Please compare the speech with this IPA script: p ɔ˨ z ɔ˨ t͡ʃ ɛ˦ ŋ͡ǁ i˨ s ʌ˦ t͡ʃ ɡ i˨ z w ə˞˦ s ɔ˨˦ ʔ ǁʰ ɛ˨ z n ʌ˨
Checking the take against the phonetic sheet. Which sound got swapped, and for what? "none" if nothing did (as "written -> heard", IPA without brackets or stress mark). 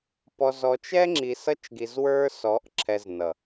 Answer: none